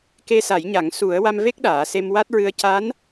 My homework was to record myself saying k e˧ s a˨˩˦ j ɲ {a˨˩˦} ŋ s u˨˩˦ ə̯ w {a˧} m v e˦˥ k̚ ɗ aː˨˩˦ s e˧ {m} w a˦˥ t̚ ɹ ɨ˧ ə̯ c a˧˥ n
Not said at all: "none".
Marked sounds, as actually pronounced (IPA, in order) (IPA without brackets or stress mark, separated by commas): a˨˩˦, a˧, m